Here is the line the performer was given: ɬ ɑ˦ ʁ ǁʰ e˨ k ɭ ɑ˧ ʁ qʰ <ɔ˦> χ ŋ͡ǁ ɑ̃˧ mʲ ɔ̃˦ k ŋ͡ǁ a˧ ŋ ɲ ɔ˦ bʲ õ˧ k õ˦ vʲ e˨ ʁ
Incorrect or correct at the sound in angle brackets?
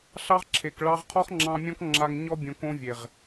correct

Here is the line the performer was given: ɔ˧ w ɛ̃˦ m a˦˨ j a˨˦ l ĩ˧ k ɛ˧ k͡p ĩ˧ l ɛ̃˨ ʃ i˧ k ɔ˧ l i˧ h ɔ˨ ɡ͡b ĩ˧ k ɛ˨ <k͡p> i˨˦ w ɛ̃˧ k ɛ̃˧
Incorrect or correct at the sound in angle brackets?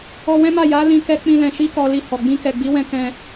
incorrect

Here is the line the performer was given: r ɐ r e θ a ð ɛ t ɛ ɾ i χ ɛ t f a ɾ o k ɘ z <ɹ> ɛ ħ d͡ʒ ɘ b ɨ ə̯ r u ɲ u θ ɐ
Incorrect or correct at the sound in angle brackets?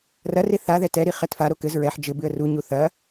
correct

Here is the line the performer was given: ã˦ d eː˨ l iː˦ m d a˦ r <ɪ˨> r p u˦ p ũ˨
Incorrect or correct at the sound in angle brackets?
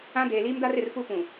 correct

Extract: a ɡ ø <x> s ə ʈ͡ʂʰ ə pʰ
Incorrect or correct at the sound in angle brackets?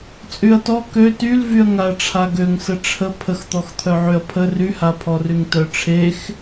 incorrect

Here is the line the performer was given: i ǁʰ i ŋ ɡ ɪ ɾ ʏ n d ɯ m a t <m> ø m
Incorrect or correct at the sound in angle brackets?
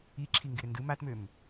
correct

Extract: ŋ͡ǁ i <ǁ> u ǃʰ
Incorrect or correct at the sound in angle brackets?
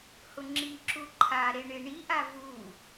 correct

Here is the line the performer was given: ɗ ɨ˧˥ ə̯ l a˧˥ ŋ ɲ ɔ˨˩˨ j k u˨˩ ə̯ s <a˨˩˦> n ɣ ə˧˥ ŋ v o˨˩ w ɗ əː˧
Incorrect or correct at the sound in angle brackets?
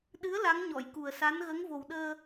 incorrect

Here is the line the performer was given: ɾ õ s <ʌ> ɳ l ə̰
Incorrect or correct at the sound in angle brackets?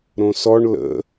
incorrect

